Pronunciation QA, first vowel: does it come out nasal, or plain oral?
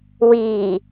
oral